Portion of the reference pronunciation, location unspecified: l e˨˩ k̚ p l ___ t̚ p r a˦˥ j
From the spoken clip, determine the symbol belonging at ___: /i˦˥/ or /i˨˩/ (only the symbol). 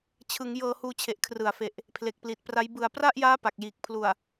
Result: i˨˩